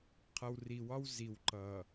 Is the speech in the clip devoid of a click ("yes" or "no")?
no